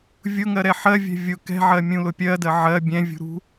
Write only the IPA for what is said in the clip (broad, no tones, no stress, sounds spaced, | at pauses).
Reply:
vʲ ʊ ŋ ɜ ɾ ɛ ħ ɜ vʲ ɛ̤ vʲ ʊ k ɛ̤ ʕ ɜ mʲ ũ l ʊ pʲ ɜ d ɜ ʕ ɜ bʲ ɛ̃ vʲ ṳ ɾ ṳ